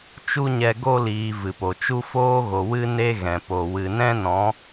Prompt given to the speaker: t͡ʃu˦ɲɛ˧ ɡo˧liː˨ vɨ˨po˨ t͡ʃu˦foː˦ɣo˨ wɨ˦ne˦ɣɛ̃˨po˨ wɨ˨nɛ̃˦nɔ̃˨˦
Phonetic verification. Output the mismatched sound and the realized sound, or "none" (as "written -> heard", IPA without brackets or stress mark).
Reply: none